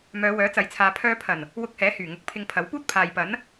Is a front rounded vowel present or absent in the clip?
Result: present